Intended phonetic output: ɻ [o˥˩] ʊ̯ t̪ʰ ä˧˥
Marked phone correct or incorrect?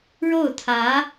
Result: correct